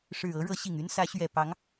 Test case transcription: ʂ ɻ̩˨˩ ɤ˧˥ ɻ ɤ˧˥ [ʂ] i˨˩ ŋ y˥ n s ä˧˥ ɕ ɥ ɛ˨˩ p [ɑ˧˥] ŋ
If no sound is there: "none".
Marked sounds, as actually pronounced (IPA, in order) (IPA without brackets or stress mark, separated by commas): ɕ, ɑ˧˥